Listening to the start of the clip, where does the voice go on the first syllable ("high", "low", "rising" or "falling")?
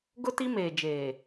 high